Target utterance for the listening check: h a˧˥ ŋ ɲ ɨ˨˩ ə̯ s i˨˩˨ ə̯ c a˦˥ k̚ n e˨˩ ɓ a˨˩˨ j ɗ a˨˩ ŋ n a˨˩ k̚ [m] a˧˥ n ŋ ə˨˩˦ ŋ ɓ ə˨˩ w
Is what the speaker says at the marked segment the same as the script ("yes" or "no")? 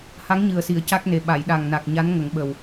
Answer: no